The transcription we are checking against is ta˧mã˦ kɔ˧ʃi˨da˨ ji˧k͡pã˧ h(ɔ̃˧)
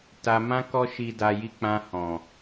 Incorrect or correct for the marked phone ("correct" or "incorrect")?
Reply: incorrect